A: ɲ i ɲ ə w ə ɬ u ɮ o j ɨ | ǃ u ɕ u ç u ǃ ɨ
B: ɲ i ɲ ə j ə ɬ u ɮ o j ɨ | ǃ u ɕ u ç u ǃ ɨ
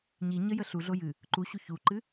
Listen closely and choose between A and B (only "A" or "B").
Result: B